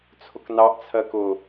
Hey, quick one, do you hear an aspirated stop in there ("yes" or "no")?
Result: yes